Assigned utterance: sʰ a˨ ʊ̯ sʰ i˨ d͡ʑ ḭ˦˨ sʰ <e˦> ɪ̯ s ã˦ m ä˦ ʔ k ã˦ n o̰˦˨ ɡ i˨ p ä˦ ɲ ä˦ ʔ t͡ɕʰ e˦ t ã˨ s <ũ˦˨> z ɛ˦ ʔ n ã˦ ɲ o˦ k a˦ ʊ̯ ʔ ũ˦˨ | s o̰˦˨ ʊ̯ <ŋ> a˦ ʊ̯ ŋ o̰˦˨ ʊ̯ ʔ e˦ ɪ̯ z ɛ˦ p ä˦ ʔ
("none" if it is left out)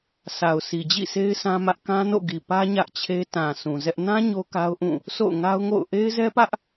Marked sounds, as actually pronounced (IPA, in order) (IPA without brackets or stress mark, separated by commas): e˦, ũ˨, ŋ